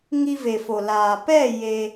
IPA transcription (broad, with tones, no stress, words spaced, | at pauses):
ŋi˧ve˨fo˨ laː˨pɛ˦˨ je˧